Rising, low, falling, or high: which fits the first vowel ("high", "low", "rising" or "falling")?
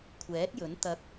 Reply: rising